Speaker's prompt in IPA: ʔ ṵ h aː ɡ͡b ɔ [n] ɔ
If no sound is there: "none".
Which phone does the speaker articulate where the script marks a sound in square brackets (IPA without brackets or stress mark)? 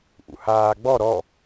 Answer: ɾ